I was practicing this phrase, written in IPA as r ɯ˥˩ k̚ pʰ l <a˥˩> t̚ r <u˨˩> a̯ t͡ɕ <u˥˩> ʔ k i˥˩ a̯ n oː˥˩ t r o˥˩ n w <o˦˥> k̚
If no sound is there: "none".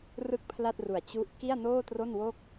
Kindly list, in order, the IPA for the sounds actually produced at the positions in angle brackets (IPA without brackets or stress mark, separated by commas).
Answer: a˥˩, u˨˩, u˦˥, o˥˩